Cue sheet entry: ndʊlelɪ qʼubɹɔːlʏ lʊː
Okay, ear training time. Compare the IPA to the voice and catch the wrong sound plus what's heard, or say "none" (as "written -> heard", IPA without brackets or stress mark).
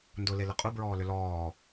ʊː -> ɔː